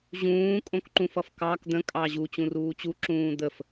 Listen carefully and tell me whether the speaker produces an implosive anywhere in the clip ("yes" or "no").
no